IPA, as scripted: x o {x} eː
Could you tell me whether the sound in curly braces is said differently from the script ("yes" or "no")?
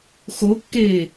yes